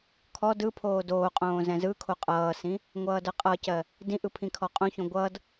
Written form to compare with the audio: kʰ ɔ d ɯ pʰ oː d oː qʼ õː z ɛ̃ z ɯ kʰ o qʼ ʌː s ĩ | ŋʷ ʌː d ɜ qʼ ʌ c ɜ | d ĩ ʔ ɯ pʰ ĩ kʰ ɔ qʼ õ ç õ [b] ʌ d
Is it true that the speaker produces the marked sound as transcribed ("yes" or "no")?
no